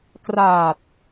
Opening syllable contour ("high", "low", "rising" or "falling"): low